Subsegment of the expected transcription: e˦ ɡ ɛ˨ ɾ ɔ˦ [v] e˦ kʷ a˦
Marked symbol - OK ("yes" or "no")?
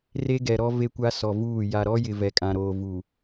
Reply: yes